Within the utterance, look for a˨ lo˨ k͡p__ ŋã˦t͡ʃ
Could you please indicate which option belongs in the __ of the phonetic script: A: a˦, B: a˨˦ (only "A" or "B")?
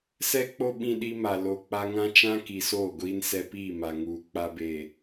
A